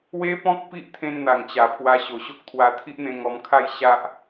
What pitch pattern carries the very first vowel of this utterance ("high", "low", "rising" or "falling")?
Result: high